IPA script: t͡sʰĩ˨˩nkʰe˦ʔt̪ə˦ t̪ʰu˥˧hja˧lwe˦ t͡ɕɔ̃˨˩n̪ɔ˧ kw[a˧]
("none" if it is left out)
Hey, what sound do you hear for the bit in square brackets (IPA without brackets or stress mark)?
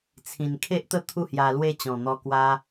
a˧